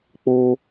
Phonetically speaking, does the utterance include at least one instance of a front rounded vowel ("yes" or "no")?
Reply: no